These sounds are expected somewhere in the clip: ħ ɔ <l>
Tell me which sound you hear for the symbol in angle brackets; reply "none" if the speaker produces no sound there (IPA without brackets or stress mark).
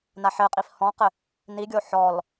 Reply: l